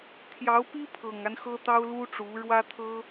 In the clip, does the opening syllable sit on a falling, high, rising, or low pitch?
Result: rising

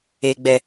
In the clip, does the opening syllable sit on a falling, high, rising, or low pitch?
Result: low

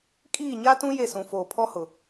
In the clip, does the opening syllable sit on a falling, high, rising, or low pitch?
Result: falling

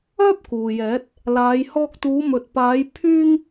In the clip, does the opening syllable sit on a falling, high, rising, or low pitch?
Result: high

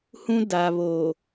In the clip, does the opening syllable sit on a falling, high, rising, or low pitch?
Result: high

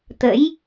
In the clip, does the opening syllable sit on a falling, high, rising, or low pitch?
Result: rising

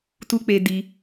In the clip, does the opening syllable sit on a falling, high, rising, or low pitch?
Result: low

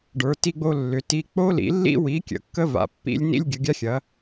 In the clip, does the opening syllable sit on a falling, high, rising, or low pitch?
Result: rising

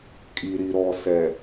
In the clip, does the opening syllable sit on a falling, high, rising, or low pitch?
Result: low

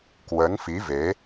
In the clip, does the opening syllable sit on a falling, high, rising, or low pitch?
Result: rising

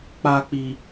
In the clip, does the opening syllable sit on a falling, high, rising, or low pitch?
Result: low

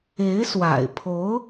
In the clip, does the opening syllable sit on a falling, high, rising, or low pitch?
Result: rising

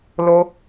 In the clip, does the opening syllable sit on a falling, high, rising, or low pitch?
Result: high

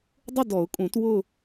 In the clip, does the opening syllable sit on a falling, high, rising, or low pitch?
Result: falling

